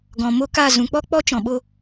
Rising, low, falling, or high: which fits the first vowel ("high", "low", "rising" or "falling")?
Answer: low